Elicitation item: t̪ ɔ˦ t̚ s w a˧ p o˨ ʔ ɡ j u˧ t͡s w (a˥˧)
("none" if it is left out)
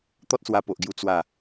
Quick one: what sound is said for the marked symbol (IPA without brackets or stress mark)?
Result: a˥˧